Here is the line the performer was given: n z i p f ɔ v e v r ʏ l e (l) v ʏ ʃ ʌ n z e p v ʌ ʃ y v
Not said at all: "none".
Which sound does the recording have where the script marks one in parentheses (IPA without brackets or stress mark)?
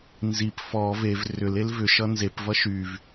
l